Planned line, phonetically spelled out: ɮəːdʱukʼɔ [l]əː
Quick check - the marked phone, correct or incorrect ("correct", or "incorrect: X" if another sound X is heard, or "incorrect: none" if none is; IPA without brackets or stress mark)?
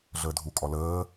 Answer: correct